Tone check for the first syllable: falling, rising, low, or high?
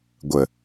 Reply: low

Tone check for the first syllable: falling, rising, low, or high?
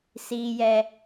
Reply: low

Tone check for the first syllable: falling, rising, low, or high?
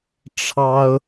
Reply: high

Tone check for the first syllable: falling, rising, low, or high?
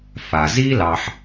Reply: low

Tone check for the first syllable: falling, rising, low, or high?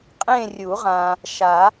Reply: falling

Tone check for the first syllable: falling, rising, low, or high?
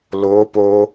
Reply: rising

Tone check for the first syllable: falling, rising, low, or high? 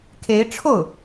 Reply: rising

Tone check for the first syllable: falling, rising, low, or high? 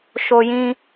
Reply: high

